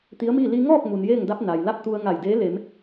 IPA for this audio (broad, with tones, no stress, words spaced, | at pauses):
t̪i˧˥ə̯miː˥˨ li˧ŋɔː˥˨k̚ mu˩njeː˥˨ŋda˧˥p̚ na˩jla˥˨p̚ t̪u˧ə̯ ŋa˧˩jdeː˧˥ le˩˧m